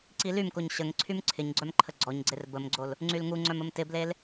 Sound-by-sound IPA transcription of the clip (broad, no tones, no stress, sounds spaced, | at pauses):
ǀ i l y m k o ɲ ɕ ə ŋ ǀʰ y m ǀʰ ɪ ɲ ɡ͡ǀ œ m ǃʰ ə ɡ͡ǀ ɔ ɲ ɡ͡ǀ e r b ə m ɡ͡ǀ o l | ŋ͡ǀ y l ŋ u ŋ͡ǀ œ m ə m t ɪ b l e l